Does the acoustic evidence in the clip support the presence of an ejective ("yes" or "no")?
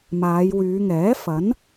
no